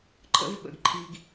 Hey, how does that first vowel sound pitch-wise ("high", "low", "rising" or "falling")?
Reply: high